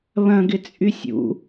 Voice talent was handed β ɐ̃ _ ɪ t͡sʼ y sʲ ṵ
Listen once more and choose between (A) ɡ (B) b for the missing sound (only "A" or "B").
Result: A